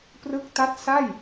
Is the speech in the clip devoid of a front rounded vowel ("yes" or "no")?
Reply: yes